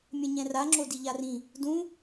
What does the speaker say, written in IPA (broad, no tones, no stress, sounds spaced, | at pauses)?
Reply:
mʲ ɛ̃ ɲ ɛ̃ r a ŋ͡ǁ o d i ʎ a r ĩ | d ũ